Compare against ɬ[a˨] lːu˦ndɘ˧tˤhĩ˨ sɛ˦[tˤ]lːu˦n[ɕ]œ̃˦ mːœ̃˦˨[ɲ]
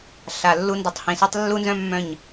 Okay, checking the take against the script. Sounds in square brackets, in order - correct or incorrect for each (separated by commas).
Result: correct, correct, incorrect, correct